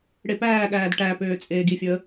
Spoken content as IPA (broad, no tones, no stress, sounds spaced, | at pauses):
ɽ e p æː ɠ æː d ʈ æ p øː t͡sʼ eː ɡ i fʲ ɵ ə̯